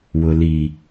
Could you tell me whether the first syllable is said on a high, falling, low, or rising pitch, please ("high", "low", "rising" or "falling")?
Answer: low